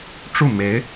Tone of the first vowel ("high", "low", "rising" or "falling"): falling